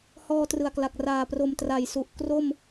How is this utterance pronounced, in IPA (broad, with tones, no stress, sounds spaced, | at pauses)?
h ɔː˧ t r ɯ˨˩ a̯ k l a˨˩ k̚ r aː˨˩ p r o˨˩ m t r a˨˩ j s u˨˩ ʔ k r o˥˩ m